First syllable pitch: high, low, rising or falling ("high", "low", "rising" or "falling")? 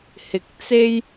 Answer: low